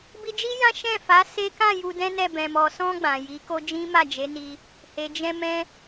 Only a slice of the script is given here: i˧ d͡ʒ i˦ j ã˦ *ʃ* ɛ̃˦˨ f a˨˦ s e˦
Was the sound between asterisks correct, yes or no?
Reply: yes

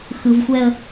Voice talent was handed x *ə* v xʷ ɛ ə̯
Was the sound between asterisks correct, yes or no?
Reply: no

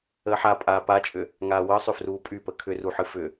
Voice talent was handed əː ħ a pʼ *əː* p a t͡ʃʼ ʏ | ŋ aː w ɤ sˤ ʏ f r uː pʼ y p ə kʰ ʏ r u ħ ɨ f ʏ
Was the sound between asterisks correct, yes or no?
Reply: no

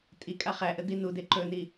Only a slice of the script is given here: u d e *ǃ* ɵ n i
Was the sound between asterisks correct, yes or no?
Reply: yes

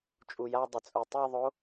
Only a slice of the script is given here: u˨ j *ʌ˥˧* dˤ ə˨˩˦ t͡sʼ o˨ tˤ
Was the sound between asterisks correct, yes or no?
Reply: no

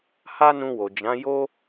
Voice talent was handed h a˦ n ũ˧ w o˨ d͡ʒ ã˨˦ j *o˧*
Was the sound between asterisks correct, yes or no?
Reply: no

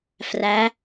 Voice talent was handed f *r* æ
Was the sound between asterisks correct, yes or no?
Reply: yes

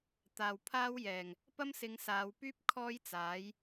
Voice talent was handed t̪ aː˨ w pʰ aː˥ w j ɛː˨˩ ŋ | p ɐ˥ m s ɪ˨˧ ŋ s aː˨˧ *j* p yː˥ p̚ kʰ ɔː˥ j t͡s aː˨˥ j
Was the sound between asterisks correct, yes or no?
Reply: no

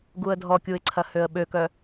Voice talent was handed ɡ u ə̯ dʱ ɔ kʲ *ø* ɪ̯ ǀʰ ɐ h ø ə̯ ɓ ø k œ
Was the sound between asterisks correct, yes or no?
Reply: no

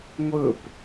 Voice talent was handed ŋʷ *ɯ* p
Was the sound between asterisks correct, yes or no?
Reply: yes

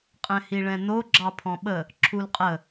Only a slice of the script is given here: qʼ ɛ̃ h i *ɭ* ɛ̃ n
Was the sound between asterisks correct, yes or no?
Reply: yes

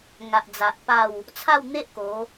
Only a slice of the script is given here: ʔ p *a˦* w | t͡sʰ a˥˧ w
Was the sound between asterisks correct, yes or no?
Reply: no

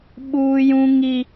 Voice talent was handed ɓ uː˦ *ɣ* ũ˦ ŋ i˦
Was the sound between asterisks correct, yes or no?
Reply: no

